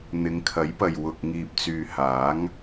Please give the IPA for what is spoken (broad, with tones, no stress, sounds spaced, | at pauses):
n̪ ɪ˨˧ ŋ kʰ ɐ˨˥ j p ɐ˨ j w ʊ˨ k̚ ŋ iː˨ p̚ t͡s yː˨ h aː˨˥ ŋ